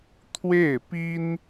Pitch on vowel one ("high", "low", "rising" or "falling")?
falling